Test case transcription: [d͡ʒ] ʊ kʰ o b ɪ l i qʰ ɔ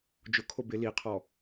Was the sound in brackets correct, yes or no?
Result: yes